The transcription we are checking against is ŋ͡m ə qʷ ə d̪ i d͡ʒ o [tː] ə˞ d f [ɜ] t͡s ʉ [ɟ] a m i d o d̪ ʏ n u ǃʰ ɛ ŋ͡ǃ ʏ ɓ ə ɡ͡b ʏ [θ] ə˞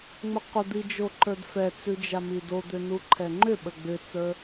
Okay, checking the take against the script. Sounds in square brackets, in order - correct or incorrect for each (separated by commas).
incorrect, incorrect, incorrect, incorrect